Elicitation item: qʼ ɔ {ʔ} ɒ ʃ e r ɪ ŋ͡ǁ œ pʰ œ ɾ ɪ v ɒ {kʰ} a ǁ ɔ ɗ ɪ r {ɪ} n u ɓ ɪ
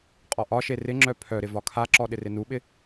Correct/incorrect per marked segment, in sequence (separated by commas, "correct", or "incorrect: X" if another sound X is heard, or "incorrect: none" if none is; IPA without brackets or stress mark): correct, correct, correct